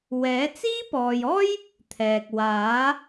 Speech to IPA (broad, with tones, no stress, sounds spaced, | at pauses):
w ɛː˨˥ t͡s iː˥ p ɔː˨ j ɔː˥ j | t̪ʰ ɛː˨ k̚ w aː˨˥